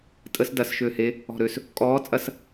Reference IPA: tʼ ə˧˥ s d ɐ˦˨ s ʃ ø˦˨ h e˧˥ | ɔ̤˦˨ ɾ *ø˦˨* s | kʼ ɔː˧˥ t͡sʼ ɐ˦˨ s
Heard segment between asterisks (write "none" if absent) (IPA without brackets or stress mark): ø˦˨